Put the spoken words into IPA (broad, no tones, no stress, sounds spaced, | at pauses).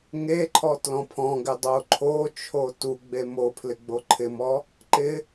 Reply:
ŋ e ǃʰ ɔ t l ɔ̃ pʰ ɔ̃ ɡ ɪ dˤ o ǃʰ o t͡ʃʰ o t u ɡ͡b e m o pʰ l ɪ ɡ͡b o ǃʰ ɪ m ɔ | ǃ ɪ